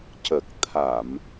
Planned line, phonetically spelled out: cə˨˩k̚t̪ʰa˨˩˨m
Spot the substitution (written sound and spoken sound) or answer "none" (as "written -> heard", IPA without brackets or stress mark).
none